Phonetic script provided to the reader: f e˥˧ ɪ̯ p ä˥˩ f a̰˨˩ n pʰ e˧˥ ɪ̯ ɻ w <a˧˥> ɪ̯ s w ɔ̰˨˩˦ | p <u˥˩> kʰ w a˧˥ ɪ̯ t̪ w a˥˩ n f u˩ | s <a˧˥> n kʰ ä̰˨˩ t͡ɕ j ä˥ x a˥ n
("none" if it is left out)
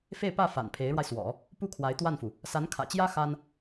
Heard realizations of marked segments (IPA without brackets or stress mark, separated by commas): a˧, u˥˩, a˧˥